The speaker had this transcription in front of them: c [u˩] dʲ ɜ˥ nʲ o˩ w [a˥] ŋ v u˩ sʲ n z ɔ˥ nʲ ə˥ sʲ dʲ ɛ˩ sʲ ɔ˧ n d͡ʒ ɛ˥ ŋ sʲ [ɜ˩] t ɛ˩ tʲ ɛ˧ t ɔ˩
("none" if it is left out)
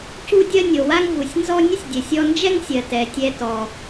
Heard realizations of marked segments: u˥, a˥, ɜ˩

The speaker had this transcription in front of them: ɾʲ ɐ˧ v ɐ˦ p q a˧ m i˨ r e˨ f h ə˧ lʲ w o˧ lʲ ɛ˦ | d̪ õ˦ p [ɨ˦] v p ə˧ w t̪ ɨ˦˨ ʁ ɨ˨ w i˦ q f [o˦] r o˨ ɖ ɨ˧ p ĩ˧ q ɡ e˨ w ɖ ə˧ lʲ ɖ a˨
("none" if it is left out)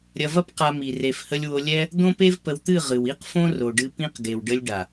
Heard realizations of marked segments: e˦, õ˦

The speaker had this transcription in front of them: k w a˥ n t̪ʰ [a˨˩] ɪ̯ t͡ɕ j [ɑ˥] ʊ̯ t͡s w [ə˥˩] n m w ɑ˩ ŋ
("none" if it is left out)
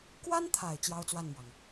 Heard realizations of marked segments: a˨˩, ɑ˥, a˥˩

